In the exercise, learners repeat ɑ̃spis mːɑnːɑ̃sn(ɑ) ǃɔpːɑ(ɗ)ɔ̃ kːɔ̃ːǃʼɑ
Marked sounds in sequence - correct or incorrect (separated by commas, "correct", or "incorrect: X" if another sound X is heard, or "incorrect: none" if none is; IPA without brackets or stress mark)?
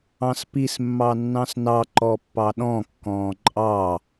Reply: correct, correct